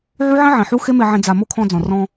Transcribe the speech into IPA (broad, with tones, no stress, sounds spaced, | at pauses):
ʕ u˦ ʕ ĩ˦ ʕ ĩ˨ ħ u˦ x e˦ m e˧ ʕ ẽ˧ d͡z a˨ m o˦ kʰ ɔ̃˧ d͡z ɔ̃˨ r ɔ̃˧